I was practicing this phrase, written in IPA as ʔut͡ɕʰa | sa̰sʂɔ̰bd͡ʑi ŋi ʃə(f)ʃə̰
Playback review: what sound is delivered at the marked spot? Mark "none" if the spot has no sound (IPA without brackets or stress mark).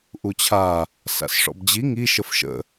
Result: f